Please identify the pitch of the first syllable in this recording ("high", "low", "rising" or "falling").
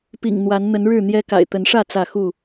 low